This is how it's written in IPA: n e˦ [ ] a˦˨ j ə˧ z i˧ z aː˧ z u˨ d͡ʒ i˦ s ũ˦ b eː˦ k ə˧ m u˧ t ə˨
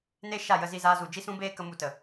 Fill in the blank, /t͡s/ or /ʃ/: ʃ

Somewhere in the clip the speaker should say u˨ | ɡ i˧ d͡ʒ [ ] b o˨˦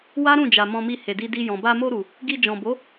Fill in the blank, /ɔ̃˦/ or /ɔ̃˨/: ɔ̃˨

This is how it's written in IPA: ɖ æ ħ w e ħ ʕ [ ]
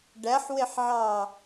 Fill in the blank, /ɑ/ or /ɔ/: ɑ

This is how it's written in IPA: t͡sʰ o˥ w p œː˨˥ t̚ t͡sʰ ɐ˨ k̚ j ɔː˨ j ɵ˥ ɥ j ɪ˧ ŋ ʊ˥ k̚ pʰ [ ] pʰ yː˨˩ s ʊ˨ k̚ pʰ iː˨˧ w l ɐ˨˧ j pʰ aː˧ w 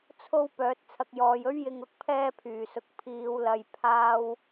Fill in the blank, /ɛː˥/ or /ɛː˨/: ɛː˥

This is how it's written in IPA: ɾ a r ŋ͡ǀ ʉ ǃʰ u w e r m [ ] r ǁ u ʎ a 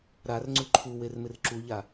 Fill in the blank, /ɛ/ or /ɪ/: ɪ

